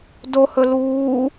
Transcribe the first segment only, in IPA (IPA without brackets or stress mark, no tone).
d